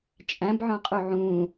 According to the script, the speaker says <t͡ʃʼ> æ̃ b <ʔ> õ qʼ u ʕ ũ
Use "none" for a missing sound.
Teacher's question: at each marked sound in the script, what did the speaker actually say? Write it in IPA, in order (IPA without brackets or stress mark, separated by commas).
t͡ʃʼ, ʕ